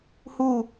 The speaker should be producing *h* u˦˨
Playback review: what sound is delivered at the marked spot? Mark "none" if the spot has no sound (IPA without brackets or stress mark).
h